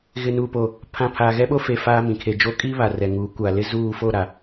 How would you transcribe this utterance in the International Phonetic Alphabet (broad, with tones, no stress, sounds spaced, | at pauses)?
ɣ ɪ˨ n uː˨ p o˨ | pʰ ã˨ pʰ aː˨ ɣ ɛ˦ ɓ oː˦ f e˨ f aː˦ m ĩ˨ kʰ e˨ d͡ʒ o˦ kʼ iː˦ β a˨ r ɛ˨ ŋ uː˨˦ kʷ aː˨ l ɪ˦ z uː˦˨ f oː˦˨ ɾ a˨